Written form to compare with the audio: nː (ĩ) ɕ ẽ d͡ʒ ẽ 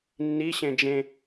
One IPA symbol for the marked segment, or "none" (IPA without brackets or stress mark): i